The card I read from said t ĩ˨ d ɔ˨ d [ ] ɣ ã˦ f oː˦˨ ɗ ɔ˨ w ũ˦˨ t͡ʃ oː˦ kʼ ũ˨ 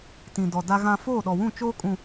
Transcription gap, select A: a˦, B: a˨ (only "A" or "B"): A